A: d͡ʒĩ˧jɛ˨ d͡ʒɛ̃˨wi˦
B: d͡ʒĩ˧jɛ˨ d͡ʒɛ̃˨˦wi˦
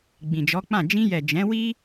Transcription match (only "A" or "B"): B